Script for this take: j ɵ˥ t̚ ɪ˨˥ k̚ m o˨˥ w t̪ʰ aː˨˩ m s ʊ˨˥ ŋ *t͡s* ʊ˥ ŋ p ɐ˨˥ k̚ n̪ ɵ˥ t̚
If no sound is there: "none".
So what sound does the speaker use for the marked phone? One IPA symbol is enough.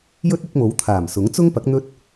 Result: t͡s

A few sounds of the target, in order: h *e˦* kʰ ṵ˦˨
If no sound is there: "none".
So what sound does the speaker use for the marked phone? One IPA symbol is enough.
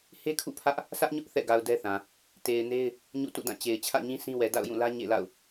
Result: e˦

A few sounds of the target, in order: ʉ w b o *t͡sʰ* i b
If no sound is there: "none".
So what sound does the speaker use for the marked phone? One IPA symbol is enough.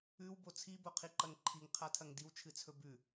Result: t͡sʰ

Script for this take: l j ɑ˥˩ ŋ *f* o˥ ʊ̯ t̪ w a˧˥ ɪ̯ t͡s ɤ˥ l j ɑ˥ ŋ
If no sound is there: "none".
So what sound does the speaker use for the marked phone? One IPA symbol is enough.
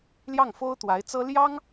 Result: f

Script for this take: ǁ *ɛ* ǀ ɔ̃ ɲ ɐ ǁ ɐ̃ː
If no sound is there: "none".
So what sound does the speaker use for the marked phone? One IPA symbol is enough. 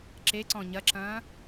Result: e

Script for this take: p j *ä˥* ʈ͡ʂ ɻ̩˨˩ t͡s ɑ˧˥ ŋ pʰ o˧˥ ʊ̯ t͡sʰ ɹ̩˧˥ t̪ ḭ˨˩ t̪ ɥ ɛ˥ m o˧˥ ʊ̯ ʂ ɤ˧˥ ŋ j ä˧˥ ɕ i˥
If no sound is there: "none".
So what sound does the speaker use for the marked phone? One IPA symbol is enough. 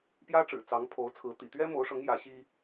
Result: ä˥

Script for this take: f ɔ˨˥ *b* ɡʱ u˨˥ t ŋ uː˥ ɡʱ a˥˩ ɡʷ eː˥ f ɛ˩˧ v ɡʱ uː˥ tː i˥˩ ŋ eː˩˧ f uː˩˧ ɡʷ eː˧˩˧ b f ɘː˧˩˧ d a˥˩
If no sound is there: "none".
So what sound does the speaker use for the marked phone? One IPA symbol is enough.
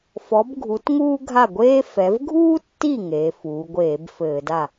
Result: b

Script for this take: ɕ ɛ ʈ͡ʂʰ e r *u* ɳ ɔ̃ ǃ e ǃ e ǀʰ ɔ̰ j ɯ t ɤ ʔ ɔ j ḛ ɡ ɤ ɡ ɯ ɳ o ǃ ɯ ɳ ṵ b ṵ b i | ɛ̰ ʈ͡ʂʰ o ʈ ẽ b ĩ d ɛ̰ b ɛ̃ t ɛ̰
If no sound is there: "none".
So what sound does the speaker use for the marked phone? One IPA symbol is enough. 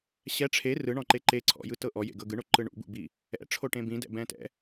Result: ɯ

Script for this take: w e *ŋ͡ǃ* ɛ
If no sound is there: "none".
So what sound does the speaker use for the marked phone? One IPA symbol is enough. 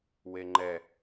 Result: ŋ͡ǃ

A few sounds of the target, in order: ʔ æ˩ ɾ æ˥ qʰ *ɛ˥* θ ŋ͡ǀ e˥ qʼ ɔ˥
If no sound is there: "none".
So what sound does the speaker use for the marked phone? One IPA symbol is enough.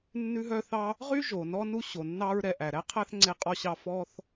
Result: æ˥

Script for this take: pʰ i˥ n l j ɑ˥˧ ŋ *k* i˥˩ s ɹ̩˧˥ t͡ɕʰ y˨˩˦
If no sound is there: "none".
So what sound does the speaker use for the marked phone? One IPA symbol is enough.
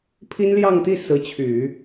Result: t̪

